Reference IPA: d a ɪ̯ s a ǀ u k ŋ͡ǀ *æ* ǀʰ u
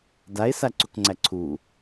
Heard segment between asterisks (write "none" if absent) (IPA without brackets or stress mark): æ